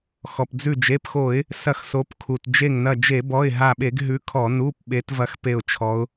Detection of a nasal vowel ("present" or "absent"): absent